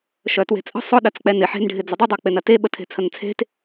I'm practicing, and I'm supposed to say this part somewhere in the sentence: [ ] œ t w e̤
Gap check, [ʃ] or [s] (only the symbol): ʃ